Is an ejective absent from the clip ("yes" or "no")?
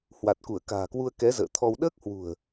yes